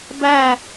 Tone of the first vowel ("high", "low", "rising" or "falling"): falling